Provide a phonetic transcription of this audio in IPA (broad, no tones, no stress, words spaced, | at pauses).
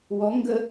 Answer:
wɔ ŋɡə